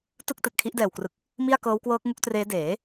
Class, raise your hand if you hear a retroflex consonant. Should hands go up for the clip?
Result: no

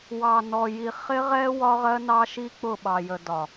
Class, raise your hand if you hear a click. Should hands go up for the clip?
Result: no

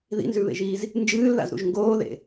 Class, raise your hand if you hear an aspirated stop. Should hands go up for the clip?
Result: no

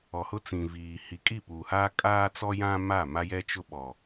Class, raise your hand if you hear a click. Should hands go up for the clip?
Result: no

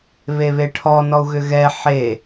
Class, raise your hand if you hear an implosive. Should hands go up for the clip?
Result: no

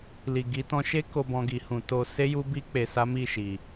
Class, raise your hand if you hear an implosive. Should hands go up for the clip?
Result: no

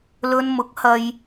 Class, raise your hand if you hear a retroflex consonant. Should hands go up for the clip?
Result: no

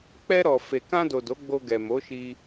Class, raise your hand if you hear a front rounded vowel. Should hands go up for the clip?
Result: no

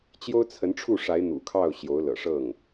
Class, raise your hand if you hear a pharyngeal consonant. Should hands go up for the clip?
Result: no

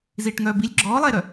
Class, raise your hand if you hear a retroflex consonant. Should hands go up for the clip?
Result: yes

